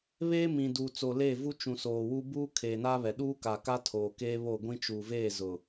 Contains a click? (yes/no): no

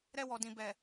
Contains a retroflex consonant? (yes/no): no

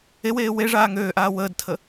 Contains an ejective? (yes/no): no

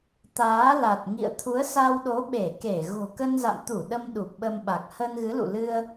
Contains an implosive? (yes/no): yes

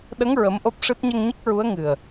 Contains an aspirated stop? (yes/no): no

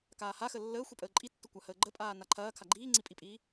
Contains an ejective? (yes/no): yes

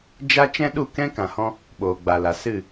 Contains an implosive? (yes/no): yes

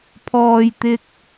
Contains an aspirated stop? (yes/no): yes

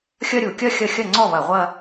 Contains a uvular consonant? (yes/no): yes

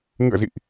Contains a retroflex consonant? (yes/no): no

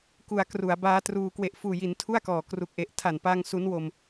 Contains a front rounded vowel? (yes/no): no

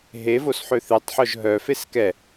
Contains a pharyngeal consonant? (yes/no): yes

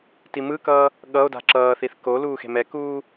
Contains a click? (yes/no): yes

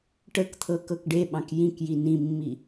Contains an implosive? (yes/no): yes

